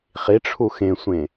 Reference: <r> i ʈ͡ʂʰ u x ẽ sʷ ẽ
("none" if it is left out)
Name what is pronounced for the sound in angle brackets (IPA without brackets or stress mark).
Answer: χ